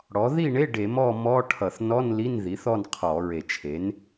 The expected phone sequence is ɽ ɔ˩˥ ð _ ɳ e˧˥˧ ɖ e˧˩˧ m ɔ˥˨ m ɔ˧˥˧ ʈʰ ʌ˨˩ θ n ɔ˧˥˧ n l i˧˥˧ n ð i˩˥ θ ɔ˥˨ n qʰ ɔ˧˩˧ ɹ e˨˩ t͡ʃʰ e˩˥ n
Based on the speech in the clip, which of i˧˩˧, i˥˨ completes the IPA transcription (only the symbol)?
i˥˨